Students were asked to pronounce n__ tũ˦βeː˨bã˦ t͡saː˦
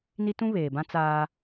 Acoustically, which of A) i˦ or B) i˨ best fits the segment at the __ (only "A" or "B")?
A